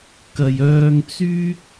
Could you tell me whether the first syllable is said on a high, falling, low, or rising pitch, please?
low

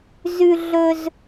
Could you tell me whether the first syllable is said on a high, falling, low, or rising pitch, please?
high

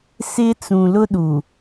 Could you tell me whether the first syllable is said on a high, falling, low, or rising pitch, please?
high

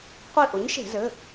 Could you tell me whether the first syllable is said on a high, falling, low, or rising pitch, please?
falling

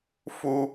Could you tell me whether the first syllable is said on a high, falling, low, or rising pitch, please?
high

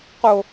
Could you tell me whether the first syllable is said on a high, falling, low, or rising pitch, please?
low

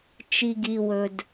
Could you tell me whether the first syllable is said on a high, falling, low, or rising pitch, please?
low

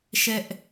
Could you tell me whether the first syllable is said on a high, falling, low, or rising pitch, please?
high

